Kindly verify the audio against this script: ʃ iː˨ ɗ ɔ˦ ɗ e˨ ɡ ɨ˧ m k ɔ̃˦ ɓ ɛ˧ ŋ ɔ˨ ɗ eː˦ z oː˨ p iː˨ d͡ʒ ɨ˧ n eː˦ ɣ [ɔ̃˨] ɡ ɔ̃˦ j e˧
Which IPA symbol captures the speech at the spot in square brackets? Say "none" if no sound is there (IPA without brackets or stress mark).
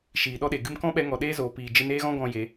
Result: ɔ̃˦